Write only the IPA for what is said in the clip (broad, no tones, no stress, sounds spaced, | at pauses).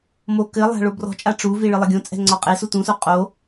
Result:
m o k ɘ lˠ a̤ ɭ o b r ɔ̤ t͡ʃʼ a ʈ͡ʂ u v i ɭ ɨ lˠ ɘ ɡʲ õ t͡sʼ ɛ̤ ŋ͡ǀ ɔ qʼ e s u t ũ s o qʼ o